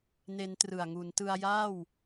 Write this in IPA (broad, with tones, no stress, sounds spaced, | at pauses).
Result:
n e˦˥ n t r ɯ˨˩ a̯ ŋ u˩˦ n t ɯ˧ a̯ j aː˥˩ w